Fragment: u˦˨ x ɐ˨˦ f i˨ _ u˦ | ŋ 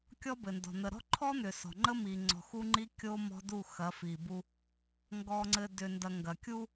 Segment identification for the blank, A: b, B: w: A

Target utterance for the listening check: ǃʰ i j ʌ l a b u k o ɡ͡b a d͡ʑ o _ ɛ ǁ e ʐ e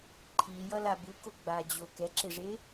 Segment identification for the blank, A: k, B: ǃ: A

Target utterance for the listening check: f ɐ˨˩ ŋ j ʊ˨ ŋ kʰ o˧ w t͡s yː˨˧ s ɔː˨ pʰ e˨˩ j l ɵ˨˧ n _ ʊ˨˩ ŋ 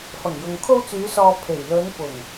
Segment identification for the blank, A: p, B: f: A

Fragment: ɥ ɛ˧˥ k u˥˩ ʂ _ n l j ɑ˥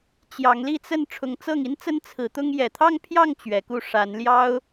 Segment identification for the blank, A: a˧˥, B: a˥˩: A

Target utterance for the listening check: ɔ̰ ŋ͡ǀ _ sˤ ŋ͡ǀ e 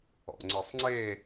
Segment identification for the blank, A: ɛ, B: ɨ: B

